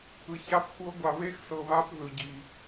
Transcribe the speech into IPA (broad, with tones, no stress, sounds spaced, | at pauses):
ɯ˧ ç a˦˥ p xʷ ɤ˦˥ ɡʷ a˧ β e˦˥ x s ɤ˧ β a˦˥ p ð ɯ˧ ɟ i˧